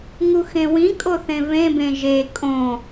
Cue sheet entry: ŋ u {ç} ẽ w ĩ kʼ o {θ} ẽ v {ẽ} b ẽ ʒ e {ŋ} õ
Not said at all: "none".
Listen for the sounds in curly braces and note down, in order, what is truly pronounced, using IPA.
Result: x, θ, ẽ, kʼ

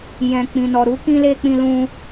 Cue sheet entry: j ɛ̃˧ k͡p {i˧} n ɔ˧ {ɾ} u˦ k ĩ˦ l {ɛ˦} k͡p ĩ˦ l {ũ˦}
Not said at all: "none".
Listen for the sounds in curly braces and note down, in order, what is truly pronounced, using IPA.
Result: ĩ˧, ɾ, e˦, ũ˦

